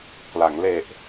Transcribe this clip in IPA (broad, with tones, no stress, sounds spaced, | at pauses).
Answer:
k l a˩˦ ŋ l e˨˩ ʔ